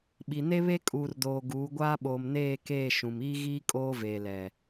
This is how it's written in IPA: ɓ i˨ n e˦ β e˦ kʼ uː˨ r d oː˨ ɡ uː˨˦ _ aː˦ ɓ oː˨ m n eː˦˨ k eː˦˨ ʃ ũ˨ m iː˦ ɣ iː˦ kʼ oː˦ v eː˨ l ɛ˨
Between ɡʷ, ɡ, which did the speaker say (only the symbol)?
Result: ɡʷ